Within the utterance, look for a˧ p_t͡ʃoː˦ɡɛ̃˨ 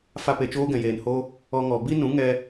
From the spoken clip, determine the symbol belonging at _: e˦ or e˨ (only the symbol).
e˨